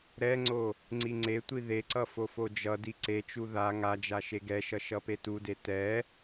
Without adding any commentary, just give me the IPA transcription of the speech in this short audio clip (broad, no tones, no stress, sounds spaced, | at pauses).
ɾ ɛ ŋ͡ǀ o | ŋ͡ǀ i ŋ͡ǀ e tʷ i ð e ǀ ʌ f o f o d͡ʒ ʌ d i ǀ e t͡ʃ u ð a ŋ a d͡ʒ a ʃ e ɡ ɛ ʃ ʌ ʃ ʌ p e t u d e t ɛ